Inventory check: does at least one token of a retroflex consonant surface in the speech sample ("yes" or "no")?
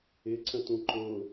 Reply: no